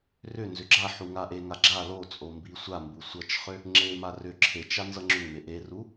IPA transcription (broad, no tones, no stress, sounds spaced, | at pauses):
r ʏ n z ʏ ɡ͡ǁ a ħ u ŋ a ʔ e ŋ a ɡ͡ǁ a l o t͡sʼ o m b i sʷ a m b u sʷ ʌ t͡ʃ χ ʏ | ŋ͡ǁ e m a r ʏ ǁʰ e t͡ʃ a n z ʌ ŋ͡ǁ ʏ ŋ m e ʔ e r u